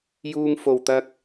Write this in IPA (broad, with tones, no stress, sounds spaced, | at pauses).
j uː˧ ŋ f o˨ w t̪ ɐ˧ k̚